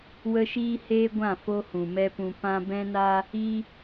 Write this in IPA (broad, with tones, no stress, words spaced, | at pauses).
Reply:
wə˦ʃiː˦heː˦ɡʷã˦˨ fo˦hũ˨mɛ˦pũ˧ pã˧ bɛ̃˦na˦ | i˦